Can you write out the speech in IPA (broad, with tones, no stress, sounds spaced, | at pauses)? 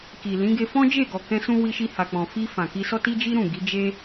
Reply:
k i˨ l ĩ˨˦ ɡ e˧ f ɔ̃˦ d͡ʒ e˦˨ ɡ ɔ˨ k ɛ̃˧ s ũ˧ w i˧ ʃ i˧ h a˨ k͡p ɔ̃˨ f i˧ f ã˨ k i˧ s ɔ˦ t i˦ d͡ʒ i˦ ɾ ũ˦˨ ɡ i˨˦ d͡ʒ e˦